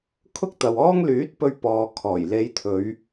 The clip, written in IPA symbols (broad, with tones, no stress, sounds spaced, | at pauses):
kʰ ʊ˥ k̚ t̪ ɐ˨ w ɔː˥ ŋ l yː˨˥ t̚ p ɵ˧ ɥ p ɔː˨ kʰ ɔː˨˩ j l e˨˧ j t̪ʰ ɵ˨˧ ɥ